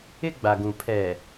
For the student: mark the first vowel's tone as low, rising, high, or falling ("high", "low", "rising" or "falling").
high